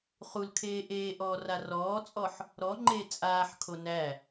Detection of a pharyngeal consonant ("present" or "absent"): present